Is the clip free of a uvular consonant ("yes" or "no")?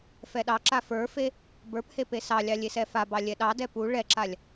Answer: yes